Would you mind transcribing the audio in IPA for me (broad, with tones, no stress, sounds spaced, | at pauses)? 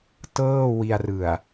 t ɤː˥˩ w i˧ a̯ r ɯ˨˩ a̯